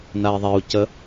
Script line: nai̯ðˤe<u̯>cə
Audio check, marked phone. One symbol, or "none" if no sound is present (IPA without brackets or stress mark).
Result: u̯